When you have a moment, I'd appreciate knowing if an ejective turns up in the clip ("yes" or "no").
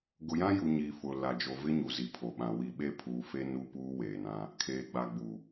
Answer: no